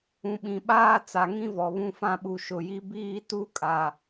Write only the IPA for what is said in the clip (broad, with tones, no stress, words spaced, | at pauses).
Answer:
ũ˨ɓĩ˨ ɓaː˦ t͡sa˨ŋĩ˦ vɔ˨βũ˦fã˦ɓu˨ ʃʊ˨ji˦ biː˦tu˦kʼa˨